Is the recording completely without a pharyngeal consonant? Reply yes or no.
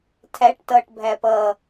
yes